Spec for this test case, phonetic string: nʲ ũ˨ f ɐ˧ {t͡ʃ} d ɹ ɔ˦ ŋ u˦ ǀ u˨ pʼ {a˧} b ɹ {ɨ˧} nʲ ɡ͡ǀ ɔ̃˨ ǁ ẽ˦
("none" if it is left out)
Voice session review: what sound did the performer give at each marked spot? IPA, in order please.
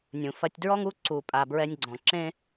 tʲ, a˨, ɛ˧

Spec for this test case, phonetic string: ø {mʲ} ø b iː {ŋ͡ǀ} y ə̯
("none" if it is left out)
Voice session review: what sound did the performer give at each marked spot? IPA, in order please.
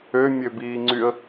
mʲ, ŋ͡ǀ

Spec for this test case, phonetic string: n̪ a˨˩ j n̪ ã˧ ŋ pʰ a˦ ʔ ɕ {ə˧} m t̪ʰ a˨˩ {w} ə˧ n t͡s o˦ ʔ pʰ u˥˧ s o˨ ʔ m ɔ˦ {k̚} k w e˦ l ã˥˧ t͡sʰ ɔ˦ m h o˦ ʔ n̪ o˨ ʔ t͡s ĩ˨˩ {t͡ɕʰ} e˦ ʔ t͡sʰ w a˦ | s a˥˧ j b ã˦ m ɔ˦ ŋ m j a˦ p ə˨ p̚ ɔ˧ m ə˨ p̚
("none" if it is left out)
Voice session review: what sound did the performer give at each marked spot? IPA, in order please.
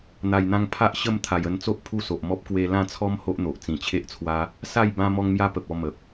ə˥˧, j, p̚, t͡ɕʰ

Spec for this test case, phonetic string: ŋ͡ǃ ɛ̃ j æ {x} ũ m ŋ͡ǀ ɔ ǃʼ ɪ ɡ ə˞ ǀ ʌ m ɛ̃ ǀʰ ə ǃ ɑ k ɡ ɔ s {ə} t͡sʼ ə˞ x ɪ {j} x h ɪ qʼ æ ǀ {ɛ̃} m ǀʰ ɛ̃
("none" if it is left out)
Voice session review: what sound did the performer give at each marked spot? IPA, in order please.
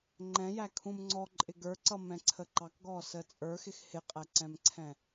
kʰ, ə, none, ɛ̃

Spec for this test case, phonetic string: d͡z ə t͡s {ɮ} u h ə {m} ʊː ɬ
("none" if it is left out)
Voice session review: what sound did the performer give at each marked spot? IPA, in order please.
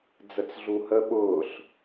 ɮ, ɓ

